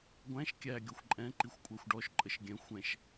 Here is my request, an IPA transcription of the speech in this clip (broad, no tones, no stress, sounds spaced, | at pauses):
ɡʷ æ̃ ʃ kʲ æ ɡʲ ɔ xʷ ǃʼ ɛ̃ ǃ i xʷ kʷʼ æ xʷ ɖ ɔ ʃ ǃʼ ə ʃ ɡʲ ɛ̃ xʷ ɛ̃ ʃ